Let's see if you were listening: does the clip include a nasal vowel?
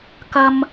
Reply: no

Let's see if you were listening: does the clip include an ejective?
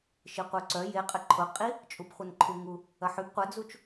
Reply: yes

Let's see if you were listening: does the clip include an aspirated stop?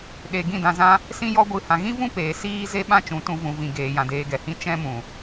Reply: no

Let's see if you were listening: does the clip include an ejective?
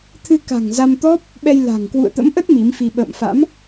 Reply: no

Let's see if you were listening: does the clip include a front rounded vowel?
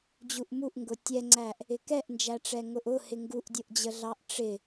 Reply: no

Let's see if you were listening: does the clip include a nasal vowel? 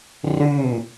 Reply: no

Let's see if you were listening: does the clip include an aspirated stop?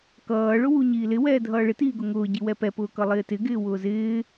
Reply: no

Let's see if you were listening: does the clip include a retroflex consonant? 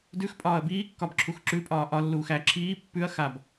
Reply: no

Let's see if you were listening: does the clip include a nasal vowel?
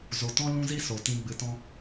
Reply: yes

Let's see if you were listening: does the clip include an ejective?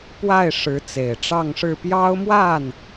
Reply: no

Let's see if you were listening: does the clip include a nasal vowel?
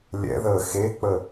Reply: no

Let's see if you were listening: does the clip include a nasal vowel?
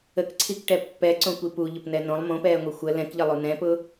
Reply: yes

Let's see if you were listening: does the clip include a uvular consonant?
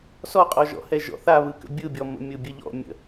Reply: yes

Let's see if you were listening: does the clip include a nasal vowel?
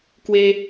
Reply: no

